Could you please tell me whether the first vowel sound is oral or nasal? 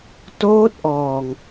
oral